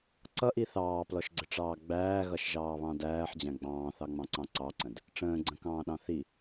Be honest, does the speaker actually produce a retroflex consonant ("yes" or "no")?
yes